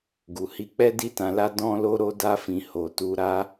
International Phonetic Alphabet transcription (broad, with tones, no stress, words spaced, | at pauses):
ɡu˨hi˧k͡pɛ˦ di˦tã˧la˦ dɔ̃˦lo˦ ɾo˦da˦fĩ˧ ho˧tu˦ ɾa˦